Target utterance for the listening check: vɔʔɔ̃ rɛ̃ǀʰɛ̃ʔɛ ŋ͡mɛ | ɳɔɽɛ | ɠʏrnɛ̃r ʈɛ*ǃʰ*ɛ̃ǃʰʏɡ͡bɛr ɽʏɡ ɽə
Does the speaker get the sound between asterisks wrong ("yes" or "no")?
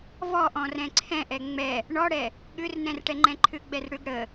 yes